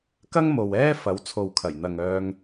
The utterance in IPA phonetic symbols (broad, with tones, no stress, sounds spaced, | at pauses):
k ɐ˥ ŋ m o˨ w ɛː˥ f ɐ˨˥ w t͡sʰ o˨ w kʰ ɐ˨˩ j n̪ ɐ˨ ŋ œː˧ ŋ